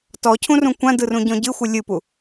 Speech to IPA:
t ɔ cʰ ũ r ũ kʷ ã d ɯ r ũ ɟ ɔ̃ ɟ ɨ xʷ ɨ lʲ ɨ p u

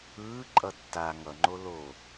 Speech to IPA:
ɯː ǃʼ ʌ tː a ŋ ʌ ŋ͡ǃ o l o

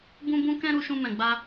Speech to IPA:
b ũ˦ b ũ˦ k ɛ̃˦ ɾ u˧ ʃ ũ˧ m ɛ̃˨ ɡ͡b a˧

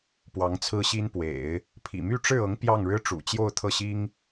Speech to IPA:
p w ɑ˧˥ ŋ t͡sʰ ɹ̩˥ ɕ i˥ n p w ḛ˨˩˦ ɪ̯ | pʰ ḭ˨˩ m y˥ ʈ͡ʂ ɻ̩˥˩ ɤ˧˥ ŋ p j ɑ˥˩ ŋ ɻ ɻ̩˥ ʈ͡ʂ ṵ˨˩ t͡ɕ j o˥˧ ʊ̯ t̪ʰ ɤ˥˩ ɕ i˥ ŋ

